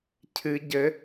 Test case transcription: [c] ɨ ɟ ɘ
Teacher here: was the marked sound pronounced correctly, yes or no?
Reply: no